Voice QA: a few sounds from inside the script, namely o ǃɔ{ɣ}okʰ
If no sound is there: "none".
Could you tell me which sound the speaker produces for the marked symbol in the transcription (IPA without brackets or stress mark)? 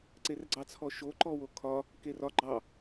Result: w